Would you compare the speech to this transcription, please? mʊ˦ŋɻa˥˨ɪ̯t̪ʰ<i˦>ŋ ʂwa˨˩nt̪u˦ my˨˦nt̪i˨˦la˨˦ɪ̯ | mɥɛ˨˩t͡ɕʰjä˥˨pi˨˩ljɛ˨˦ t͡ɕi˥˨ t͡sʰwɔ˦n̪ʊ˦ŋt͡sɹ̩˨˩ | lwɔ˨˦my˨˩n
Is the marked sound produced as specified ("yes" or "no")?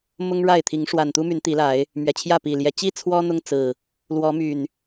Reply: no